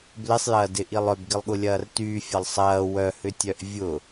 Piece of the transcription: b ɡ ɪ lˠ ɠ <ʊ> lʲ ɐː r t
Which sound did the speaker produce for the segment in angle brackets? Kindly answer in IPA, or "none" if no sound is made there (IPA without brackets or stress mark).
ʊ